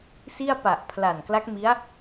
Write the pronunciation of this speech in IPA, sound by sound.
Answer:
s i˥˩ a̯ p a˨˩ ʔ pʰ l a˨˩ n k l a˦˥ k̚ m i˦˥ a̯

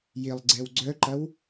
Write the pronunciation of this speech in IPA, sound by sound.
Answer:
j ɪ lˠ ɡ͡ǀ ɛ w ɡ͡ǀ œ ǃ ɐ w

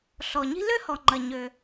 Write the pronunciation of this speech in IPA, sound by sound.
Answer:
ɬ ɔ˩ ɲ i̤˥ l ø˥ h ɔ˩ ŋ͡ǃ ɐ˩ ɲ ø˩

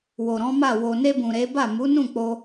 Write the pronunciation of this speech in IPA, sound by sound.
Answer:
w o˨ ɾ ɔ̃˨˦ m a˦˨ w o˨ n e˧ b ũ˨ ɾ e˨˦ b a˦˨ m u˨˦ n ũ˦˨ k͡p o˧

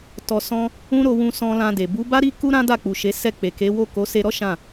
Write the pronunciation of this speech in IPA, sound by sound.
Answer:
t ɔ˧ s ɔ̃˦ | ũ˦ ɾ o˧ w ũ˧ s ɔ̃˧ l ã˧ d e˨ b u˨˦ b a˦ ɾ i˦ k u˦ ɾ ã˦ d a˦˨ k͡p u˨ ʃ e˨˦ s ɛ˦˨ k͡p e˨ k e˨˦ w o˦˨ k o˨˦ s e˧ ɾ ɔ˦ ʃ ã˦˨

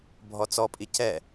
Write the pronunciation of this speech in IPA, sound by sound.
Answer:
bʱ ɔ t͡s ɔ pʼ i c ɛ

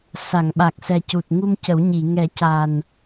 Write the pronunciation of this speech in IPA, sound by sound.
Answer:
s a˨˩˨ ŋ ɓ a˨˩ k̚ s ɛ˨˩ c u˨˩ t̚ ŋ u˧ m c ə˨˩˦ w ɲ i˨˩˨ ŋ ɛ˨˩˦ c a˨˩ n

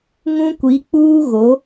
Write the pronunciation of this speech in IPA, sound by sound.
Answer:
ŋ ũ˦ kʷ i˨˦ k͡p uː˦ ɣ o˨˦

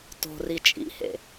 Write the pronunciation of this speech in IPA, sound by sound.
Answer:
t o̤ r i t͡ʃʼ ḭ h ḛ

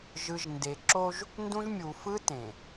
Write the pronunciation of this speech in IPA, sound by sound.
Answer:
ʒ ɯ˨ ʒ n d e˨ ǁ o˦ ʒ | n d ũ˦ ʒ mʲ u˨ f ɯ˦ t ẽ˨

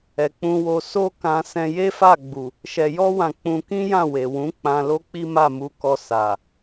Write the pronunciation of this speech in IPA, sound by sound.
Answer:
ɛ˨ k͡p ũ˧ w o˧ s o˦ k ã˧ s ɛ̃˧ j e˦ f a˦˨ ɡ͡b u˨ | ʃ ɛ˨ j ɔ˧ w ã˨ k͡p ũ˧ k ĩ˦ j ã˦˨ w e˨ w ũ˨˦ k͡p ã˧ l o˦ k͡p i˦ m a˦˨ m u˧ k ɔ˧ s a˨

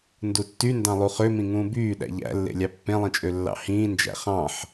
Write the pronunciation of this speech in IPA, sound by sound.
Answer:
n d u tː y n d ɑ̃ lˠ u χ ø m ĩ ŋ ũː b yː ɗ æ̰ ʎ æ̰ lː ḛ lʲ ɑ pː ẽ lˠ ĩ t͡ʃʼ ø lː ɑ̰ h ĩː n d͡ʒ æ̰ χ ɑ̃ ħ

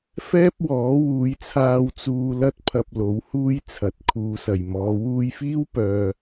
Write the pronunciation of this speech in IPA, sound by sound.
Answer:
f ɛː˥ p̚ w ɔː˨˥ w uː˨˧ j t͡sʰ aː˧ w t͡s uː˧ l ɐ˥ t̚ pʰ ɐ˧ p̚ l o˨˥ w h uː˥ j t͡sʰ ɐ˨˥ t̚ kʰ uː˨˧ s ɐ˨˩ j m ɔː˨˧ w uː˧ j f iː˥ w p œː˧

